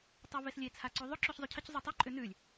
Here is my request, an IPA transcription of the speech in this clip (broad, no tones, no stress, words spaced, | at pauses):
tˤeveslʲe t͡sʰaǀuðˤʏ ǁyçzˤycʰəc zˤytˤe ǃʼʏnʉlʲ